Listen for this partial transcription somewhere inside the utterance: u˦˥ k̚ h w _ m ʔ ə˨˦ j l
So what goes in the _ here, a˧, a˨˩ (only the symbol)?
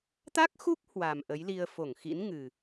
a˨˩